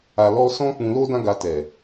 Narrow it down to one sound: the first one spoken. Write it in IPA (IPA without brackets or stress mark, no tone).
a